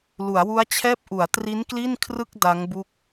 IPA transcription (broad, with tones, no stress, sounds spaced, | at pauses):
l u˩˦ a̯ w u˦˥ a̯ t͡ɕʰ ɛː˥˩ p̚ ʔ u˩˦ a̯ t r i˦˥ n k l i˥˩ n kʰ r ɯ˥˩ k̚ d a˦˥ ŋ b u˥˩ k̚